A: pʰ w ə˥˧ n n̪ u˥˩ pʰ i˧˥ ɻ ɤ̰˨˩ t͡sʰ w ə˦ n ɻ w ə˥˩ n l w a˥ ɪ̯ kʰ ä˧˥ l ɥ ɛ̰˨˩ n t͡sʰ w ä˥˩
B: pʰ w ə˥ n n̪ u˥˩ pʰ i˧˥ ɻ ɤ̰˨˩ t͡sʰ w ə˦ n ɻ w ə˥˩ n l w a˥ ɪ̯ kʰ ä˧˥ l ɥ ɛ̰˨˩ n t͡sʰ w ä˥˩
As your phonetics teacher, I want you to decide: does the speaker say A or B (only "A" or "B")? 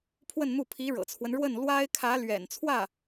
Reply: A